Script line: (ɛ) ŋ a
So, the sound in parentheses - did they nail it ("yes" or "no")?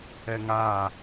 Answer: yes